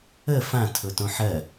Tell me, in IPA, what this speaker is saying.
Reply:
ə f ã tʰ ʊ t õ ħ ɜ

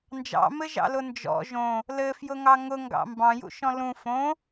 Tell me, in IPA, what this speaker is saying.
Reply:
n d͡ʒ ɑ̰ m ɘ ʒ ɑ̰ l ʊ n d͡ʒ ɔ̰ ʒ õ | l ɘ f j ʊ ŋ ɑ ŋ ʊ ŋ ɡ ɑ̰ m b ɑ̃ j ṵ ʃ ɔ̃ l ũ f õ

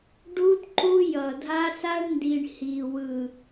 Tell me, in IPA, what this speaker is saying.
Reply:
ɖ u˦ d ǃ u˦ j ʌ˨ dʱ a˦ s a˦ ɳ n d i˨ ɳ h i˨ w ɯ˨

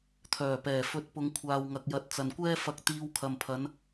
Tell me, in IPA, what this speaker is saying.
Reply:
t̪ʰ œː˨˩ p ɛː˨˩ f ɵ˨˥ t̚ p ʊ˨˧ ŋ kʷʰ aː˨ w ŋ ɐ˨ k̚ j ɐ˨ t̚ t͡s ɐ˨ n kʷ ɛː˥ f ɐ˧ k̚ t̪ iː˧ w kʰ ɐ˨ m pʰ ɐ˨˧ n

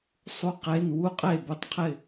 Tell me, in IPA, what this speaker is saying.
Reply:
sˤ u˧ q e˩˧˩ n w u˥˧ qʼ e˥˩ b ʊ˥˩ tˤ qʰ ɪ˥˩

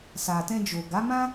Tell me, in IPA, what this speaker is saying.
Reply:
s a˨ t ɛ̃˧ d͡ʒ o˨ ɡ a˨˦ m ã˦

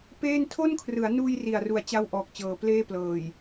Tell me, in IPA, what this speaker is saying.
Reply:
p eː˥˩ n tʰ o˥˩ n kʰ r ɯ˩˦ a̯ n uː˧ j r i˨˩ a̯ r u˨˩ a̯ t͡ɕ a˥˩ w ʔ ɔː˨˩ k̚ t͡ɕ ɤː˩˦ p l eː˥˩ p l ɤː˨˩ j

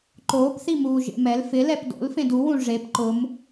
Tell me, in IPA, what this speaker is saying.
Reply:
ǃ oː p θ i m uː ʒ ḛ m ɛ l f ɪ l ɛ p d o̰ l f ẽ d u w ũ ʐ e p ǃ ʊ m

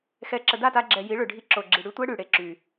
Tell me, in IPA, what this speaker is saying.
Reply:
x ɛ˨ ǁ ə˨ d a˦˨ t a˧ ɡ͡ǁ ɛ˨ j i˨˦ ɭ ø˨ ɖʱ i˧ ǁ o˨ ɡ͡ǁ i˨ ɽ y˦ tʷ ɛ˦ ɽ y˨ ɽ e˨ ǁ y˨

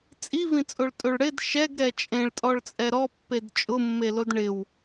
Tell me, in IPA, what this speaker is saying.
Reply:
t͡sʼ i v ĩ t͡sʼ o ɭ tʼ o ɭ ɽ ɪ d ʃ ɛ ɡ ɾ ɛ t͡ʃʼ ẽ ɭ tʼ ɔ ɭ t͡sʼ ɛ ɾ ɔ pː e d t͡ʃʼ ʊ mː e l o d ɳ ɪ w

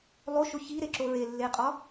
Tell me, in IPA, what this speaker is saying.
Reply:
lˠ o ʃ o ç i ɾ e ǁ o ɹ e lː e qʼ ɒ

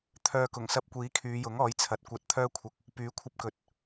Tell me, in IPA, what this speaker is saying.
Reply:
t̪ʰ œː˧ k ʊ˨˩ ŋ s ɐ˧ p̚ kʷ iː˨˥ kʰ yː˨˧ j ʊ˨˥ ŋ ɔː˨˥ j t͡sʰ ɐ˨ t̚ kʷ ɐ˧ t̚ t̪ʰ œː˥ kʷʰ ɐ˧ k̚ | p yː˨˥ kʷʰ ɐ˧ p̚ k ɵ˨ t̚

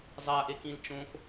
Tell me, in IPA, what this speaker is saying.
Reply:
zˤ a ʔ e k ĩ l t͡ʃ õ k

